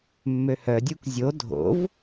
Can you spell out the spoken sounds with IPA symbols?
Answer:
mː ø h œ dʲ u k zʲ o dʱ o̰ v

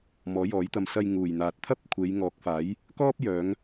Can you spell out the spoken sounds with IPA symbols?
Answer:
m ɔː˨˥ j ɔː˨˥ j t̪ ɐ˧ m s ɐ˧ j ŋ uː˨˩ j n̪ aː˨ t̚ t̪ʰ ɐ˥ p̚ kʷʰ e˨˧ j ŋ ɔː˨˥ k̚ f aː˨˥ j | k ɔː˥ p̚ j œː˨˧ ŋ

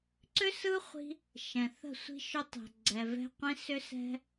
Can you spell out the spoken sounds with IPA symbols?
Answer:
ǀ ʏ˦ s ɯ˦ χʷ i̤˧ | ʃ ɛ̃˨ θ ə̤˦˨ sʷ i̤˦ ʃ ʏ˦ tˤ ɛ̤˨ ɡ͡ǀ ɛ˨ v ɛ̤˧ qʷ ĩ˧ s ʏ˦ s ɛ̤˦

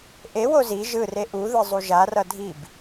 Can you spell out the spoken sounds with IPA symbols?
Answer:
ʔ e w o z i ʒ ɯ r e ʔ u ð ɯ zˤ u ʒ a r ʌ dʱ i b

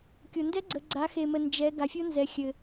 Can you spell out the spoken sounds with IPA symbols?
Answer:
kʲ o˩ n d ɛ˦˥ ɡ͡ǀ ə˩˧ ɡ͡ǀ a˩˧ x e˩ m ə˩ n d͡ʒ ɛ˩˧ ɡ a˩˧ fʲ o˦˥ n z ɛ˩˧ xʲ ɘ˩

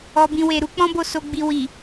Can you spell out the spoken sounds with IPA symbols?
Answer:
ɔ˨ b ĩ˨ w e˨ ɾ u˧ k͡p ɔ̃˦ b o˦˨ s o˧ ɡ͡b i˧ w i˨

